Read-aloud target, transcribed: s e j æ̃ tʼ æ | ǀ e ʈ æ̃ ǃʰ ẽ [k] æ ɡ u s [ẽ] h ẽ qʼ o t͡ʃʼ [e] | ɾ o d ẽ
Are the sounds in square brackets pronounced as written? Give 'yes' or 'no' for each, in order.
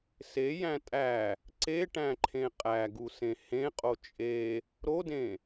no, yes, yes

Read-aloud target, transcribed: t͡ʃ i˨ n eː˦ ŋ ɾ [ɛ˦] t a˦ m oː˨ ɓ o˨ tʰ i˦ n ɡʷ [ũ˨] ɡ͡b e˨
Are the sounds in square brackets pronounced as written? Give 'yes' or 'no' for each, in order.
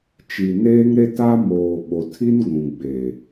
no, yes

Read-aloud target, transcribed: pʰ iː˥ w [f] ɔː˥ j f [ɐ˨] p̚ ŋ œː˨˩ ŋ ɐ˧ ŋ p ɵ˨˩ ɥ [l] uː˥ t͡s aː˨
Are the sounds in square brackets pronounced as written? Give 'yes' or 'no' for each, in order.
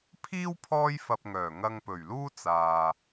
no, no, yes

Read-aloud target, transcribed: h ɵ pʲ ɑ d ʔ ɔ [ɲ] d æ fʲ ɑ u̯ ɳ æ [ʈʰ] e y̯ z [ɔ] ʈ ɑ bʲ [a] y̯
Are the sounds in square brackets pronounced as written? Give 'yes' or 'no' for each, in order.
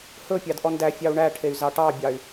no, yes, no, no

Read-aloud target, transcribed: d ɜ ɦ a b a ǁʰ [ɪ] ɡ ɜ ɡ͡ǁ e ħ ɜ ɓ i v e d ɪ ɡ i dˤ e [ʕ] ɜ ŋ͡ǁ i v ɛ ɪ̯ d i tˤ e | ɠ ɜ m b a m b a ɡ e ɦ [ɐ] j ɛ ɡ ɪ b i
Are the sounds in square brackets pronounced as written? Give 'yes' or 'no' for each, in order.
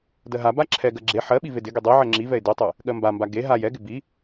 no, yes, no

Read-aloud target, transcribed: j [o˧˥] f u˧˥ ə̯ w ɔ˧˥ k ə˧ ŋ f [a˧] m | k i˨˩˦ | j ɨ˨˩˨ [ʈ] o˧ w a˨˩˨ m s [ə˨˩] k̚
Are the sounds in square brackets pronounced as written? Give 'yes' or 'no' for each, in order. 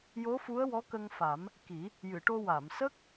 yes, no, yes, no

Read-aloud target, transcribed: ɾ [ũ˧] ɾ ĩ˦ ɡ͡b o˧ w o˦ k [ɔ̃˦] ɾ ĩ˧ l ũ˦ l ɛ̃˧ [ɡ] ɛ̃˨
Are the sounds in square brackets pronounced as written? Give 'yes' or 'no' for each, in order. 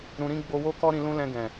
yes, no, yes

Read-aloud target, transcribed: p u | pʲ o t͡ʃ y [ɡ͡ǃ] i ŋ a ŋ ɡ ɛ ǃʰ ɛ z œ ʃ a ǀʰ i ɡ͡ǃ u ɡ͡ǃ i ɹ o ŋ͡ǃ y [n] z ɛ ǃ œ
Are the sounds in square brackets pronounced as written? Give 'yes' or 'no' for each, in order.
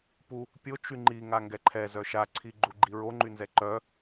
no, yes

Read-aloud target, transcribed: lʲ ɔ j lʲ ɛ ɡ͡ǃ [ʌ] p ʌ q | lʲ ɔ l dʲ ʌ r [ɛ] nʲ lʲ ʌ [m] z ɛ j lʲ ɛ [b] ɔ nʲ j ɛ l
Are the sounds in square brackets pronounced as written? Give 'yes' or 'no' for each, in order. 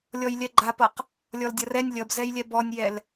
no, yes, no, yes

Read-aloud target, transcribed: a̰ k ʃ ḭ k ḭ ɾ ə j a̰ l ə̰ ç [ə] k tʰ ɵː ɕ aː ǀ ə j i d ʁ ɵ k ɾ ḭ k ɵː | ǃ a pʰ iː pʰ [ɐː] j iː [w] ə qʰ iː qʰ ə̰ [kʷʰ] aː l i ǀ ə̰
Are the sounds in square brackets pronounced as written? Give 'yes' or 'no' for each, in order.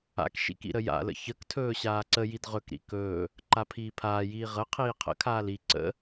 yes, no, no, no

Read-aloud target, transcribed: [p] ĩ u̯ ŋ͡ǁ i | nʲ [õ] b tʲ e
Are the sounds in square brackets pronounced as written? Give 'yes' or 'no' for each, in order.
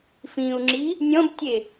no, no

